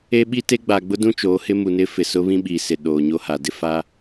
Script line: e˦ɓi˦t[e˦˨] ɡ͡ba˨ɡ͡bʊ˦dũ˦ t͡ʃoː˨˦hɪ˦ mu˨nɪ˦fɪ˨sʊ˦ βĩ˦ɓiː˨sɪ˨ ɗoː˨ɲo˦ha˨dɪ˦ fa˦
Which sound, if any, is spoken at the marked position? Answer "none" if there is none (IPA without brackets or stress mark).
e˦